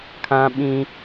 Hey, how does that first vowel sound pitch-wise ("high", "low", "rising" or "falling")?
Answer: high